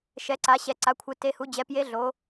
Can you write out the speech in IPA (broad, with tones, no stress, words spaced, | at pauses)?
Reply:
ʃɛ˩˧ǀa˩˧ ɕɛ˩˧ǀa˩˧kʷʰɯ˩˧ te˩˧hu˩˧d͡ʑɛ˩˧ pje˨˥ɮo˩˧